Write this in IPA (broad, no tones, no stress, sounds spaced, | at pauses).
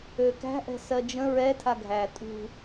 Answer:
ø k æ̤ ʔ ɛ̤ s ɜ d͡ʒ ə̃ ɹ ɛ tʰ a ɡʱ æ tʼ ṳ